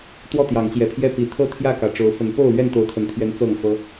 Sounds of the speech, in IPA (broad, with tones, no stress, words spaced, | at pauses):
t̪wɔ˥˨t̪jɑ˨˦ŋt͡ɕjɛ˨˩pʰjɛ˥˨ pi˨˩ t̪ʰɤ˥˨t̪ʰjä˥˨ kä˨˩ʈ͡ʂo˨˦ʊ̯fə˨˦n po˥˨ʊ̯lɥɛ˥˨n t̪o˨˦ʊ̯t̪ʰə˨˩nt̪ʰɥɛ˨˦n t͡sɤ˥˨ŋfɤ˦